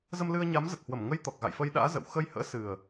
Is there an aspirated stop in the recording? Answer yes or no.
no